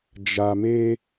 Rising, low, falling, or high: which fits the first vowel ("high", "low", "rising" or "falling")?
low